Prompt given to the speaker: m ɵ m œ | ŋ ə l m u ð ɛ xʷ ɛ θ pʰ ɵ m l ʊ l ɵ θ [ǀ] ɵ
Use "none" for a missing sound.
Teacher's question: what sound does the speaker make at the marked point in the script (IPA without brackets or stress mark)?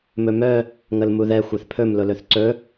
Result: ǀ